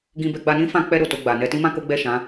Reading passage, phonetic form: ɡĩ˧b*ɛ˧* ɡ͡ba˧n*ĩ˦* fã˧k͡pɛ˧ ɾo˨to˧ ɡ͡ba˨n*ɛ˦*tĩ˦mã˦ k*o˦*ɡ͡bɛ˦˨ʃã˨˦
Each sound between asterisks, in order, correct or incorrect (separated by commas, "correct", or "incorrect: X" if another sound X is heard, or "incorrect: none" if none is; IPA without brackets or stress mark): correct, correct, incorrect: ɛ˧, correct